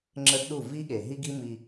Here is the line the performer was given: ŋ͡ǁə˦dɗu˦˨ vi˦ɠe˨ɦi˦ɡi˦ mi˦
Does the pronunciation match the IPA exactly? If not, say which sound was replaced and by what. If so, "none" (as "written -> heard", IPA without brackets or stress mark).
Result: none